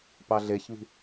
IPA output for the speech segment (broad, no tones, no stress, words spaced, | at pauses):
pɑɮeçβi̤